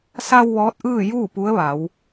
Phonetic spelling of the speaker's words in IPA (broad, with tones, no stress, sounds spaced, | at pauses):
s a˧ w ʋ ɔː˧˥ t̚ ʔ ɯː˥˨ j uː˥˨ p u˧˥ ə̯ ʋ a˩˧ w